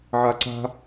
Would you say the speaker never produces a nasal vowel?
yes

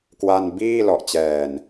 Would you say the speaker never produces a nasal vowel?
yes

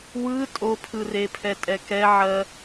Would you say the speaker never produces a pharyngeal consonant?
no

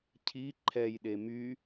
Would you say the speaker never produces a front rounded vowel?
no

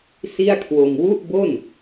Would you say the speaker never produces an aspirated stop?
no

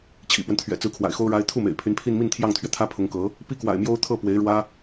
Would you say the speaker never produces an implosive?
yes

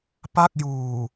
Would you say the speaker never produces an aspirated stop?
yes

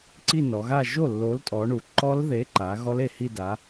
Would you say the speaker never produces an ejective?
no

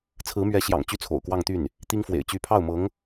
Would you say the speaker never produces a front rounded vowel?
no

